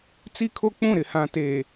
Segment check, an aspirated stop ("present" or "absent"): present